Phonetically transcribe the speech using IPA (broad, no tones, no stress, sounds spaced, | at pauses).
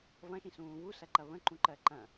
v ɐ̃ ʃ ĩ s ũː β u s ɐ ǃ ɐ β ə̃ ǃ ũ ǃ ɜ ǃ ɐ̃